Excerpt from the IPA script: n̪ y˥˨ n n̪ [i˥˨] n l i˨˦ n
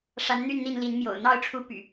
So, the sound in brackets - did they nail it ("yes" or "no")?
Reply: yes